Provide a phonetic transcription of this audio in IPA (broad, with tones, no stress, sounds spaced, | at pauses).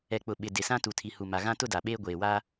ɛ˨ k͡p ʊ˨ ɓ ɪ˨ d ɪ˨ s ã˦ t u˨ tʰ i˨ h u˨ m a˨ ɣ ã˦ t ʊ˦ d a˨ ɓ eː˦ ɡʷ eː˨ w a˦